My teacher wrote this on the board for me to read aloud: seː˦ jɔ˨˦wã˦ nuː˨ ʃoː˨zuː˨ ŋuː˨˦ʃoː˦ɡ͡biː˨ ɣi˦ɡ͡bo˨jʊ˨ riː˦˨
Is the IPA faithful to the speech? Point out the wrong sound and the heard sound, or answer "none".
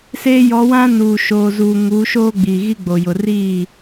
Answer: none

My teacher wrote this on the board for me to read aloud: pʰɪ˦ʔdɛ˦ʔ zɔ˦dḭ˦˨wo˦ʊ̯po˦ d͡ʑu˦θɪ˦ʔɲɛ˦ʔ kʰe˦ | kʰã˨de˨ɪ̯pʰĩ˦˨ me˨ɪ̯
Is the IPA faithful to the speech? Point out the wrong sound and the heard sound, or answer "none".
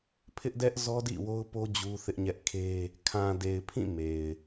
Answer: none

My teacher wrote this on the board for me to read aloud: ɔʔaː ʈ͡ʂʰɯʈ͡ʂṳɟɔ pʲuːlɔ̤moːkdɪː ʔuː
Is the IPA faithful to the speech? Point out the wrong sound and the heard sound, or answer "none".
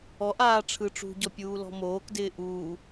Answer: none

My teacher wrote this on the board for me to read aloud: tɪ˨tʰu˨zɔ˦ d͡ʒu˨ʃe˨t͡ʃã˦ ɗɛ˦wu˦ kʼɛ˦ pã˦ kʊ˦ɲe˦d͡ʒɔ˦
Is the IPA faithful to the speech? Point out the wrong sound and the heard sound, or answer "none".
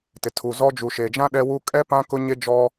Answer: t͡ʃ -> d͡ʒ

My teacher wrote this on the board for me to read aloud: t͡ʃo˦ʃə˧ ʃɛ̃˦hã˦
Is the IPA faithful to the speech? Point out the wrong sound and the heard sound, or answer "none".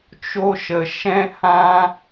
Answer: none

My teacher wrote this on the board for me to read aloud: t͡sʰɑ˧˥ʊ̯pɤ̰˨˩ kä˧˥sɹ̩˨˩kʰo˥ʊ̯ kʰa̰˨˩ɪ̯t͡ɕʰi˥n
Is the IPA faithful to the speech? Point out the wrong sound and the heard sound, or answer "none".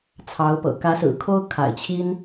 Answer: none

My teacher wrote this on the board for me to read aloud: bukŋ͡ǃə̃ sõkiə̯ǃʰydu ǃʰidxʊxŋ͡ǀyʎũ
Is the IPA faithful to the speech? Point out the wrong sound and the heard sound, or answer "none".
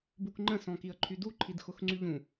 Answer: õ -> ɔ̃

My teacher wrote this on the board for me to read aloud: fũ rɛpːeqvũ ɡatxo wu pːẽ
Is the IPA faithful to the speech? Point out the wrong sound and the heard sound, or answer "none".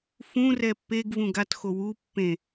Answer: q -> ɡ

